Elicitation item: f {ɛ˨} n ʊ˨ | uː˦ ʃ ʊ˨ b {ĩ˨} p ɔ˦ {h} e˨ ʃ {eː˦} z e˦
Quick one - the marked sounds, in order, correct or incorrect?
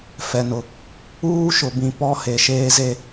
correct, correct, correct, correct

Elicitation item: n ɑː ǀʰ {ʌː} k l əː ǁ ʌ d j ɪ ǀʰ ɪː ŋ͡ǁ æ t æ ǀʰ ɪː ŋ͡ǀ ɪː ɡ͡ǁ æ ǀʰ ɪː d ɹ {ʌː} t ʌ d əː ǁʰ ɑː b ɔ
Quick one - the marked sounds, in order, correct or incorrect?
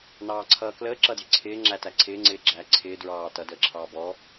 correct, incorrect: ɑː

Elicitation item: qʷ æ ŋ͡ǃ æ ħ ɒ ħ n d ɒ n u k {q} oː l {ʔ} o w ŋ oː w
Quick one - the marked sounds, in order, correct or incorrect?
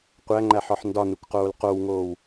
correct, incorrect: q

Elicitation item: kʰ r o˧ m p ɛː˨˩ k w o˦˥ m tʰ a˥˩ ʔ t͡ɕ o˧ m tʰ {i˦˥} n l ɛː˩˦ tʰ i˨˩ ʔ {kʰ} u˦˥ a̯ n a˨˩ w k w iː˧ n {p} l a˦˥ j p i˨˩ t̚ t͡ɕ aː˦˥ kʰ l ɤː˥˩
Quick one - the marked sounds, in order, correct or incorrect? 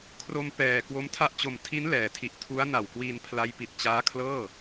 correct, incorrect: tʰ, incorrect: pʰ

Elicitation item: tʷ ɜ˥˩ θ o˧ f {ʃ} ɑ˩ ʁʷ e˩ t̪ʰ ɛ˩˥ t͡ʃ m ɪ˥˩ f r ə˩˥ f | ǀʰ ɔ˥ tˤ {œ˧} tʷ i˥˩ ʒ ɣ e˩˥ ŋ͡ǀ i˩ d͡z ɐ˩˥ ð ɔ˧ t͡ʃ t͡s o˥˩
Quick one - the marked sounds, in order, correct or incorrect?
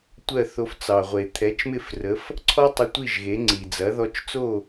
incorrect: t͡s, incorrect: ə˧

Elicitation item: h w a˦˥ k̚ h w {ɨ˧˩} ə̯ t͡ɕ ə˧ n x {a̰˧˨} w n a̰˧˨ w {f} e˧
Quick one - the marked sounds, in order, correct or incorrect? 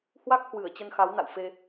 correct, incorrect: a˨˦, correct

